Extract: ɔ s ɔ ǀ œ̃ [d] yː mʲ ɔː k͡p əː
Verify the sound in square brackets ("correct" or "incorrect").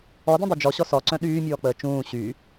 incorrect